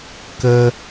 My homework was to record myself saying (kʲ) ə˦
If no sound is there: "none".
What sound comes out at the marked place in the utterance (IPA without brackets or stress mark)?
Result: k